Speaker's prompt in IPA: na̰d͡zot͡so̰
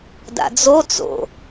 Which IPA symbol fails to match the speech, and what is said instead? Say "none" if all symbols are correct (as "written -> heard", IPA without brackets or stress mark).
n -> d